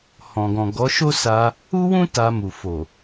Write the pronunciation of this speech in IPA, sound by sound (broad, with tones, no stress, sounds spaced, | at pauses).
h ɔ̃˨ ɡ ɔ̃˨ ɡ ɔ˨˦ ʃ o˦ s a˧ | u˦ w ũ˦ t a˧ m u˨ f o˨